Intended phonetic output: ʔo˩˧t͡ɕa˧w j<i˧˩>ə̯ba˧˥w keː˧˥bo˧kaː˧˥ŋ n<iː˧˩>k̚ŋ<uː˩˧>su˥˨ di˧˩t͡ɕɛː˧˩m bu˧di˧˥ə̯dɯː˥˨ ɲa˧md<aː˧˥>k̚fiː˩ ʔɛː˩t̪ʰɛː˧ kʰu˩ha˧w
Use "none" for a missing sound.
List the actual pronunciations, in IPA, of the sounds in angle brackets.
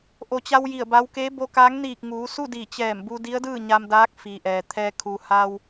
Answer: i˧˩, iː˧˩, uː˩˧, aː˧˥

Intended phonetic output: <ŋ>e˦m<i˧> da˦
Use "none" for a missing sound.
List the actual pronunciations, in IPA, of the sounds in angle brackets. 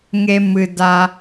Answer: ŋ, ɨ˧

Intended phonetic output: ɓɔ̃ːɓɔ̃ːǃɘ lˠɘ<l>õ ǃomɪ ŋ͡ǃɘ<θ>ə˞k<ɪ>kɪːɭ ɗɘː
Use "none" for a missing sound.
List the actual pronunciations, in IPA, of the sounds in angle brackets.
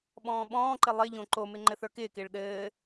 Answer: ʎ, θ, ɪː

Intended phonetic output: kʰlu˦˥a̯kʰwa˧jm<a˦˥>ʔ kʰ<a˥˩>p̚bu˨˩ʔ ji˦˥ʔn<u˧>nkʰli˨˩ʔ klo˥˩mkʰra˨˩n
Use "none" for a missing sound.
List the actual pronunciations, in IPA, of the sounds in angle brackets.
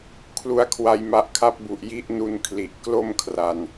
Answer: a˦˥, a˦˥, u˧

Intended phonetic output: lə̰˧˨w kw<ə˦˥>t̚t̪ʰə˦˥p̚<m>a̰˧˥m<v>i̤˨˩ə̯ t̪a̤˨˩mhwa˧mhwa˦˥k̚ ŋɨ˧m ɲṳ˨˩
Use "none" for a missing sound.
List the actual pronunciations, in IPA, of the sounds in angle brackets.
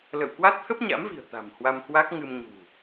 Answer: a˦˥, ɲ, v

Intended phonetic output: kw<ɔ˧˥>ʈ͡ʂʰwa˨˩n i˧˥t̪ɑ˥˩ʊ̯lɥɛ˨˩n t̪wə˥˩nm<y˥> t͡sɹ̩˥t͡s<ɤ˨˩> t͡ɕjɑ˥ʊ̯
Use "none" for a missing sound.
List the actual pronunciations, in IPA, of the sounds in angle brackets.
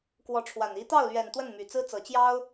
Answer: ɔ˧˥, y˨˩, ɤ˨˩

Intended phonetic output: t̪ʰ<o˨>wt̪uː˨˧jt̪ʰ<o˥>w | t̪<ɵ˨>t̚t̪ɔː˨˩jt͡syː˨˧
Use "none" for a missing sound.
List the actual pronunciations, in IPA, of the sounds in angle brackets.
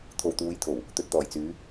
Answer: o˨, o˨˩, ɵ˨

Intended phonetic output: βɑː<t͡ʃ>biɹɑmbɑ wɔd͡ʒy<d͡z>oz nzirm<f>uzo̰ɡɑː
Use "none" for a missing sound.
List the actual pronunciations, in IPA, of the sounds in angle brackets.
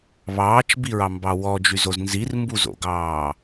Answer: t͡ʃ, z, b

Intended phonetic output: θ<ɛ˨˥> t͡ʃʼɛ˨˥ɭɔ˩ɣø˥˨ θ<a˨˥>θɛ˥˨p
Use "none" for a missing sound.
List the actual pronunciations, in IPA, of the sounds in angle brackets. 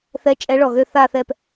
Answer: ɛ˨˥, a˥˨

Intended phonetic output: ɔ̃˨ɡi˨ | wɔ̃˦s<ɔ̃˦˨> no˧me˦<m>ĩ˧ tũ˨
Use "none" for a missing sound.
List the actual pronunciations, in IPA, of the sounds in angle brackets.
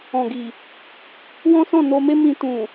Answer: ɔ̃˦˨, m

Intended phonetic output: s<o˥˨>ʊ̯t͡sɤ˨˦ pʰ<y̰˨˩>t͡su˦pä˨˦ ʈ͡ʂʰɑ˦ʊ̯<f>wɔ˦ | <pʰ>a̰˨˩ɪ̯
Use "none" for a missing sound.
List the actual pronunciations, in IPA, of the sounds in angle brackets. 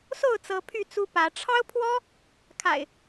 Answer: o˥˨, y˥˨, pʰ, kʰ

